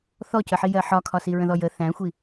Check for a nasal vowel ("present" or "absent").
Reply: present